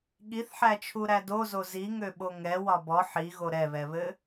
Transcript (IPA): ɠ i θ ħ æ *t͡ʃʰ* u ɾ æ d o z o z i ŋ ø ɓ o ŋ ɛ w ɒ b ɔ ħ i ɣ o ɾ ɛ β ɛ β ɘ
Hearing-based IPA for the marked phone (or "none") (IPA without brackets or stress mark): t͡ʃʰ